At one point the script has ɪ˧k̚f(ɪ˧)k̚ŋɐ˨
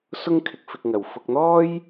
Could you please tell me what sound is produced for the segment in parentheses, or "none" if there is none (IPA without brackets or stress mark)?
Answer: ɪ˧